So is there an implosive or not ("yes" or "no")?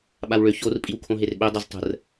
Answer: yes